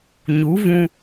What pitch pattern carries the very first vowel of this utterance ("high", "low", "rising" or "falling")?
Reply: rising